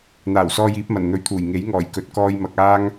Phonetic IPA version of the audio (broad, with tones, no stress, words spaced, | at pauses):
n̪aː˨˩wsɔː˧j iː˨˥p̚mɐ˨˩n n̪ɵ˨˧ɥt̪ʰuː˨˩j ŋe˨˥jŋɔː˨˩j kɵ˨˥t̚ kɔː˧jmɐ˨k̚ aː˥ŋ